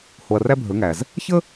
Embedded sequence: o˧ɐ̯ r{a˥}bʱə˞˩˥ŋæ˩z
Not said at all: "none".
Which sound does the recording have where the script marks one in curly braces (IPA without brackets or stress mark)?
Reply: æ˥